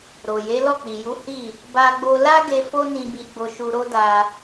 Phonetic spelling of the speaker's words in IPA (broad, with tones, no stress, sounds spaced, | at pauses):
ɾ o˨ j e˨˦ l ɔ˦˨ k͡p i˨ j u˨˦ h i˦˨ | b a˧ ɡ͡b o˧ l a˦ ɡ e˧ f o˦ n ĩ˧ b i˧ ɡ͡b o˧ ʃ u˧ ɾ o˦ d a˧